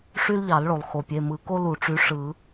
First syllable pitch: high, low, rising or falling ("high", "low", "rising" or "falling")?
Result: high